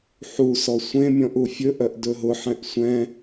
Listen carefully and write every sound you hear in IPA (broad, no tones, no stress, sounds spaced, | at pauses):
ħ u s ɔ sʷ ẽ mʲ ɔ̃ ʔ u fʲ ɵ ʔ œ ʔ d ɵ ɦ ʊ ħ ɛ̃ ʔ sʷ ɛ̃